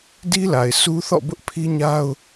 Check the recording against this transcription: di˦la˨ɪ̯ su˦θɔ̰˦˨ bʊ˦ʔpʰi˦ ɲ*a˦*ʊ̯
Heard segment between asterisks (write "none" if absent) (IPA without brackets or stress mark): a˦